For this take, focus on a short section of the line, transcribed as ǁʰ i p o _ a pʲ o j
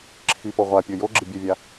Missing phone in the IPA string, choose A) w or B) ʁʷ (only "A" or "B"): B